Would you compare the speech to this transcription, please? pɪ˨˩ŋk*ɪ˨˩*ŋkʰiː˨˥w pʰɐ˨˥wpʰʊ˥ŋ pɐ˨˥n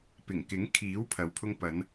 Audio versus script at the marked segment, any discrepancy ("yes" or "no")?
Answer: yes